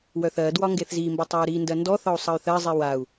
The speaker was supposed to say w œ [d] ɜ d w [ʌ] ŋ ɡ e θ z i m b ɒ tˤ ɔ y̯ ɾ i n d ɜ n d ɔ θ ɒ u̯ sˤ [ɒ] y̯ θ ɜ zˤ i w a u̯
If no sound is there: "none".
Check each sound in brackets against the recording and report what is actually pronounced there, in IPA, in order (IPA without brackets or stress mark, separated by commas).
θ, ɒ, ʌ